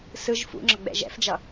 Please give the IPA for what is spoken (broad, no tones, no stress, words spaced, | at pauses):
sɯʒ fṵŋ͡ǁʌɡ͡bɛ̰ ʒɛ̰fd͡ʒʌ